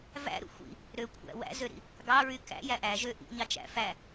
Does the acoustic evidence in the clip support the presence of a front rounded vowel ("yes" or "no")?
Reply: yes